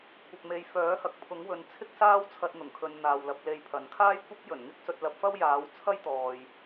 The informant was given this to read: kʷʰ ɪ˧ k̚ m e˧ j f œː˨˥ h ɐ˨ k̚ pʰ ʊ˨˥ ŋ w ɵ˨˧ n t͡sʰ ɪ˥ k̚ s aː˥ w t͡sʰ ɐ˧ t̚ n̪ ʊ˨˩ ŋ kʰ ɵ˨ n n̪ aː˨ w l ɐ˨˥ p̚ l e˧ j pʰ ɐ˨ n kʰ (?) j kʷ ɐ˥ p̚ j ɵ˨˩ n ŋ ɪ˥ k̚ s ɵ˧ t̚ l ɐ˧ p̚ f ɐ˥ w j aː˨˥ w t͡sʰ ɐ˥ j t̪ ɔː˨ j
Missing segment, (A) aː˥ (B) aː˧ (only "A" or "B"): A